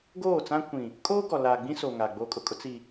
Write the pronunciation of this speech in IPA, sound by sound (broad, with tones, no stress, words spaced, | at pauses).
ɡoː˦˨t͡sã˦kʷĩ˨ | kʼoː˦ɡɔ˨ laː˨ɡ͡bĩ˦soː˨ ŋaː˨ɡ͡boː˦kʼʊ˨kʼʊ˦ t͡si˨